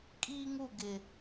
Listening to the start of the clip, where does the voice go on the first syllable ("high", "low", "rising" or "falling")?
high